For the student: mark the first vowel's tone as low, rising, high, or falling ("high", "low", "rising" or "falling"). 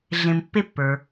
low